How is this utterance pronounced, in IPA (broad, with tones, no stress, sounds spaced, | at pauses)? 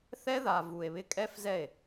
θ ɛ˦ ð a˨ v u˨ e̯ β ɪ˧ kʼ ɛ˦ f z ɛ˦˨ e̯